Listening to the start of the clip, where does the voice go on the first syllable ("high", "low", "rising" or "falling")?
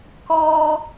high